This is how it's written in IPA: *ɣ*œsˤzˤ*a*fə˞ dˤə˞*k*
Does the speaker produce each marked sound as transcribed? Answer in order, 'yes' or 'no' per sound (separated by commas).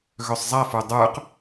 yes, yes, no